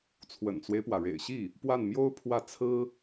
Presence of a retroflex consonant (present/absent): present